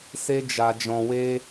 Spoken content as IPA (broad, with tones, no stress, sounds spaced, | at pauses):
s e˧ d͡ʒ a˨ d͡ʒ ɔ̃˨ w e˧